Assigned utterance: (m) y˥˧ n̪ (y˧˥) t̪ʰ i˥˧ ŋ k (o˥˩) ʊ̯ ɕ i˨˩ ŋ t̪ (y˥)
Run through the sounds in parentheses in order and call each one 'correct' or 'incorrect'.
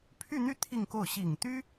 incorrect: pʰ, incorrect: y˥˧, correct, correct

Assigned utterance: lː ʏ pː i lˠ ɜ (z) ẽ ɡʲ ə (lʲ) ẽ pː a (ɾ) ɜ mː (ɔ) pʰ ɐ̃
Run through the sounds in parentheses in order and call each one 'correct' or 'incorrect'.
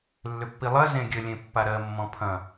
correct, correct, correct, incorrect: ɔ̃

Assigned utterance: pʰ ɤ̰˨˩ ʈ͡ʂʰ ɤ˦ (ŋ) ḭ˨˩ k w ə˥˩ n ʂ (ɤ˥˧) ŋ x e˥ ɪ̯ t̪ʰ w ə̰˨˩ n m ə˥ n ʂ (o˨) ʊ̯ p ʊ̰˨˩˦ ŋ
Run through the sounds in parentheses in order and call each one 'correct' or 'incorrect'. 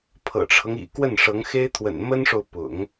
correct, incorrect: ɤ˧˥, correct

